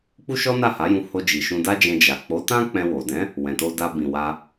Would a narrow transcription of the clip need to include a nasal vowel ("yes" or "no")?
yes